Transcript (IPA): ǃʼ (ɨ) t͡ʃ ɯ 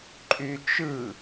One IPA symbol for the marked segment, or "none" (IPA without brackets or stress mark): y